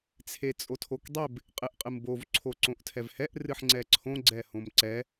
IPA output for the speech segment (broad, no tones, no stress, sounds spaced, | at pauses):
t͡sʰ e t͡sʼ o tʰ o k dˤ e b | qʼ ɨ ʔ qʼ ɨ m b o v ǀʰ o ǀ õ ʔ tʰ ɛ v h ɛ ʔ r ɨ ħ ŋ͡ǀ ɛ ǀʰ õ ɡ͡ǀ ɛ h õ m ǀ ɛ